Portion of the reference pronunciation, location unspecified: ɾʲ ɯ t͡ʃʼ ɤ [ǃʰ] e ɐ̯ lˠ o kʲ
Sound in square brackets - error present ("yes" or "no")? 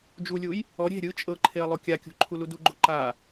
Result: no